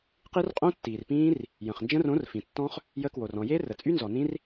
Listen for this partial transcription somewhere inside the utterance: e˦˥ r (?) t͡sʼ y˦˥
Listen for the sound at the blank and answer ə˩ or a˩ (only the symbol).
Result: ə˩